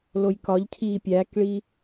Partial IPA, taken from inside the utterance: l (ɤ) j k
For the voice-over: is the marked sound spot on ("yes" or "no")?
no